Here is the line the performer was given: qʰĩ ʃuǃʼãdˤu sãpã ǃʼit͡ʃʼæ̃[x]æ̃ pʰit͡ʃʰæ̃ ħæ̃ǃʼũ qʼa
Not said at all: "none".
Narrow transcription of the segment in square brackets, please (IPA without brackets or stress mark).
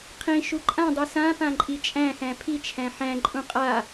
x